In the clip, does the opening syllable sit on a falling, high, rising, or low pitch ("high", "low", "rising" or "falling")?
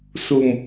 low